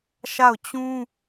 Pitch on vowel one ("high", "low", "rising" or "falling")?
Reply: falling